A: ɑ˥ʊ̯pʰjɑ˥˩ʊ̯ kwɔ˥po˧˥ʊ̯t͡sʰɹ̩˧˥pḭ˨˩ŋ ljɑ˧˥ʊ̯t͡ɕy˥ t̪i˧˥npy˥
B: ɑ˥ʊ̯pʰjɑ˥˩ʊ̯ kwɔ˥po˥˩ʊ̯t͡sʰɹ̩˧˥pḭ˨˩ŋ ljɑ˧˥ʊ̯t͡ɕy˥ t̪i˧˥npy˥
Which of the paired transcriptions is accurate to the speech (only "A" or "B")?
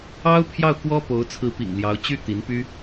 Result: A